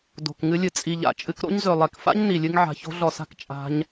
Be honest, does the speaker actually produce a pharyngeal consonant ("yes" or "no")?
yes